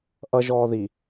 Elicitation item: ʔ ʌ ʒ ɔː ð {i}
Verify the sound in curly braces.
correct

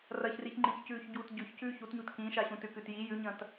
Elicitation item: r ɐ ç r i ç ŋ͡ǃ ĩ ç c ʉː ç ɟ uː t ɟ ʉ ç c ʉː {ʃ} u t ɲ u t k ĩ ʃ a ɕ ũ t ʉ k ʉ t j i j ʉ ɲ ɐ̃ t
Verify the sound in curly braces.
incorrect: ç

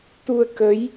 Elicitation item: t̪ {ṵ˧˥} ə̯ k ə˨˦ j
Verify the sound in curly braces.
incorrect: u˧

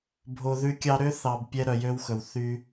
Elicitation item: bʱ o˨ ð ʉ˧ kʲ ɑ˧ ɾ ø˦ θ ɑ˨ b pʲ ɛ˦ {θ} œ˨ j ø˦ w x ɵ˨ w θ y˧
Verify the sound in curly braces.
incorrect: ɾ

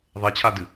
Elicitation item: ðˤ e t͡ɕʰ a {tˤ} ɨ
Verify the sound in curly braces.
incorrect: d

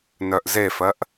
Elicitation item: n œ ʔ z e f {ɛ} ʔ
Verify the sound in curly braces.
incorrect: ɜ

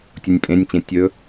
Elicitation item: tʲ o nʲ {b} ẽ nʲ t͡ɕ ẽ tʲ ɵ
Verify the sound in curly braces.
incorrect: pʼ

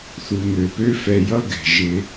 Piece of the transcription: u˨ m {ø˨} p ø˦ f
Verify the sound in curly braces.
correct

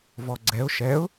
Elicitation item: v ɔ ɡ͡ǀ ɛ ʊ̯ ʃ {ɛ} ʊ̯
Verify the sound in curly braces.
correct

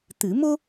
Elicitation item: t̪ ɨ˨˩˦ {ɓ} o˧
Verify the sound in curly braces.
incorrect: m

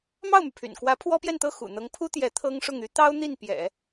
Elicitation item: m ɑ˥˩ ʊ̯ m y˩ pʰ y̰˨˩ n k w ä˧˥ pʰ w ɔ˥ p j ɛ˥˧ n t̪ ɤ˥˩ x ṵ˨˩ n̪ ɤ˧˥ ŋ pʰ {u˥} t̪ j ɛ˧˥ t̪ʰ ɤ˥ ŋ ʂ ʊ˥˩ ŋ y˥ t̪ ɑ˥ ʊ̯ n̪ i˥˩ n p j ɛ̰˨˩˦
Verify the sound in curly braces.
correct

